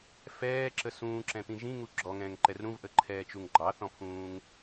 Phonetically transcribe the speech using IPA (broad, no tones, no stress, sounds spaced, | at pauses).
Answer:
f ɛː ǁ ə s ũː ǁ ɛ̃ t̪ ĩ ʒ ĩ ŋ u ɡ͡ǁ ɔ ŋ ɛ̃ː ŋ ǃ ɛ r ɾ ũ v ʔ ə ǃʰ ɛː t͡ʃ u ŋ ɡ͡ǃ ɑ θ ɔ̃ pʰ ũː ŋ